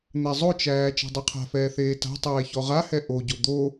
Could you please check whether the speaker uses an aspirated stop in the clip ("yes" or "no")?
yes